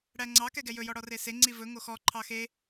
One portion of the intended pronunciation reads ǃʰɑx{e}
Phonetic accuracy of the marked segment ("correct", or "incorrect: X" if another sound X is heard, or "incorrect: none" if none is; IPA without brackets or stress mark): correct